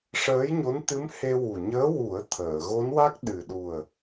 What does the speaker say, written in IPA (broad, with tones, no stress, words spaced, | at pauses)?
ʂəː˧˥jɲo˧˥nt̪ɨ˧˥m he˧wu˨˩ ɲəː˧˥wu˨˩˦ə̯ t̪ʰəː˨˩˨ɣo˧˥nwa˦˥k̚ ɗɨ˨˩ ɗu˨˩ə̯